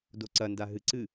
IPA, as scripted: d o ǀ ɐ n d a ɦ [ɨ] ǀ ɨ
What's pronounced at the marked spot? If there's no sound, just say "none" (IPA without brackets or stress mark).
ɨ